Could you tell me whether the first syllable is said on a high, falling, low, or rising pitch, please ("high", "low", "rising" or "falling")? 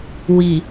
low